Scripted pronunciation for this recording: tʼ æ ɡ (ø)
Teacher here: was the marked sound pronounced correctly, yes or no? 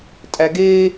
no